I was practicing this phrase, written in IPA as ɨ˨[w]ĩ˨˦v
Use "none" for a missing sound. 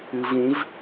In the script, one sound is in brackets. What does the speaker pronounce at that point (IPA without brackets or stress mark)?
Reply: v